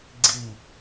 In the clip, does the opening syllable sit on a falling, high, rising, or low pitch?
falling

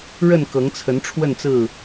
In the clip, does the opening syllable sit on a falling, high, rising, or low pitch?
falling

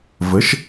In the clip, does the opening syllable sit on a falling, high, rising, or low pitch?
rising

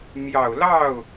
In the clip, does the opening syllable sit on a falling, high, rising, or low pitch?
low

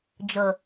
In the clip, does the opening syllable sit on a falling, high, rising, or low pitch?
low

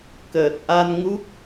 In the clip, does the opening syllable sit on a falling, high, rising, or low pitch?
low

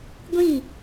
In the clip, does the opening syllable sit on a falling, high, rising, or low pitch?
falling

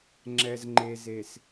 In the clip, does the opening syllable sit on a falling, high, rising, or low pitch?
low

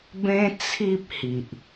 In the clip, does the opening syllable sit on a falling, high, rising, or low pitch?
high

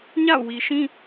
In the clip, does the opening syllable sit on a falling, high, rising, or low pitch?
falling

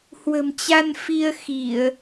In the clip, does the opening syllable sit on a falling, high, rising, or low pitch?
low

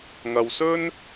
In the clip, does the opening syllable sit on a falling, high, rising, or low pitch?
low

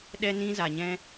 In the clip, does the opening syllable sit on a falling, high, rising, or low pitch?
high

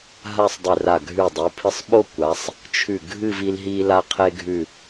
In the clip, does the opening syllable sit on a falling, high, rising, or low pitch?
falling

